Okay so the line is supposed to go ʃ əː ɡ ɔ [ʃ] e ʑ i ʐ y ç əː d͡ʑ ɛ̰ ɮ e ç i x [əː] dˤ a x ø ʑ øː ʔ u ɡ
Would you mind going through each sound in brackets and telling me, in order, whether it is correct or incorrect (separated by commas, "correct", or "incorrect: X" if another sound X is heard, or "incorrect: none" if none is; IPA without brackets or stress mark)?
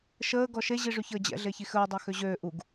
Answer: correct, correct